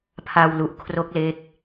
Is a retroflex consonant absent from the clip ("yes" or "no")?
yes